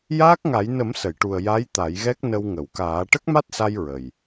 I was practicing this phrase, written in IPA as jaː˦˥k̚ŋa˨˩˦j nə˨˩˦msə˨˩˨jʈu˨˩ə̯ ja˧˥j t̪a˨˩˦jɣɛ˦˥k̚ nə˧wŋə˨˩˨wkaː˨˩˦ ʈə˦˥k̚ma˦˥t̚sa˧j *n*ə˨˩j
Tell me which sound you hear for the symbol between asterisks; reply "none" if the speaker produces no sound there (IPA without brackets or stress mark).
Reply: ɹ